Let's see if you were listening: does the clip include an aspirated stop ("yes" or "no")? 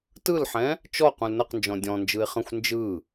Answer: no